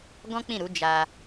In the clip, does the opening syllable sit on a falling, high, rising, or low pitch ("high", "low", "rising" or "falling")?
high